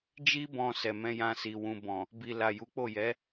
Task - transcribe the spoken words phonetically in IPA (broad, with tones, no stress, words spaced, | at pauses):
d͡ʒi˧bɔ̃˨ sɛ˨mɛ̃˧jã˧si˨ wũ˨bɔ̃˨ | bi˨la˨ ju˨˦k͡po˦˨ jɛ˨˦